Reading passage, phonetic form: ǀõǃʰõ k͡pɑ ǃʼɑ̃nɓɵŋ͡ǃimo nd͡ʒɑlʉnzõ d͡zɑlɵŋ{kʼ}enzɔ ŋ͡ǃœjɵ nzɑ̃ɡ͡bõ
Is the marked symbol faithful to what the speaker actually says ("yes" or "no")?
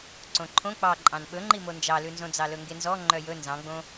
no